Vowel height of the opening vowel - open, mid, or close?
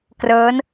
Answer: mid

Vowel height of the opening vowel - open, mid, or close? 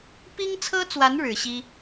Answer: close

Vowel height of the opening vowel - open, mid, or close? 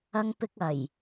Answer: open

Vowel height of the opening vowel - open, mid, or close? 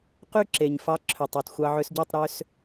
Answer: close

